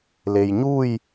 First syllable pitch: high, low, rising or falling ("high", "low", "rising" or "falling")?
low